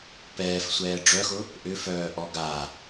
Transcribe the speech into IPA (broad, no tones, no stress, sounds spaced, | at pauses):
p ɛː f sʷ ɛː ɖ͡ʐ œ x ʊ | ʔ ʏ f œː ʔ ɔ ɡ a